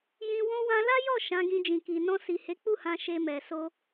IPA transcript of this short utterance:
jĩ˧ wɔ̃˧wã˧la˦jɔ˦˨ ʃã˨˦ɡĩ˧d͡ʒĩ˨ki˨ nɔ̃˧si˨ he˨˦k͡pu˦˨hã˧ ʃe˧mɛ˨ so˧

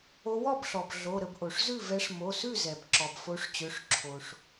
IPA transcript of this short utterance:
o˨˦wɔ˥˩bɬɔ˩b ɮo˩˧˩ɾə˥˩b ʔo˩ʂzʉ˥˩ vɛ˨˦ʂmo˩˧˩sʉ˥˩zɛ˩b ǁɔ˩bfo˨˦ʂt͡ɕø˩˧˩ʂ ǁʰo˩ʂ

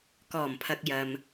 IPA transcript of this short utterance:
kɔː˨˩mpʰɐ˨k̚jɐ˨m

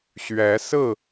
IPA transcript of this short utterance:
ɕɥɛ˨˦sɹ̩˥˨

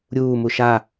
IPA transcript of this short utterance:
ɾʲuː muʃa

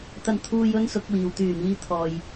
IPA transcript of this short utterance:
t̪ɐ˧nt̪ʰuː˧j ɵ˥nsʊ˨˥k̚wiː˨w t̪yː˨˩miː˨ t̪ʰɔː˨j

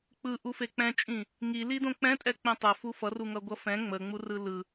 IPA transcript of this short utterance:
k͡pɯʔu fek͡pɛ̃t͡ʃʼĩ | ŋili dõk͡pɛ̃ tʼɛk͡pẽtˤɛ fufʌru ŋʌɡʷʌfɛ̃ ŋ͡mə ŋ͡murɯlɯ

